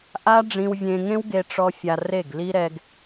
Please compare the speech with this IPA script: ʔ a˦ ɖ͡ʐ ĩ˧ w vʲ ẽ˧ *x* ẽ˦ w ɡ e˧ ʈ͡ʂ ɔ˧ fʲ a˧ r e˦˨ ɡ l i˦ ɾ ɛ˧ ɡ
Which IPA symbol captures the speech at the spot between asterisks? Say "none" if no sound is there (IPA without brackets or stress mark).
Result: ŋ